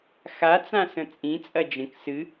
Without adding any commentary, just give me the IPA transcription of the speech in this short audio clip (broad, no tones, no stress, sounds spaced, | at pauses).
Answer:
x a t͡s ã s ə̃ t͡sʼ ĩ t͡sʼ ɐ d͡ʒ ə̃ k s ɨ